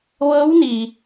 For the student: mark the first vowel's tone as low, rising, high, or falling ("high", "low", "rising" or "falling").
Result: rising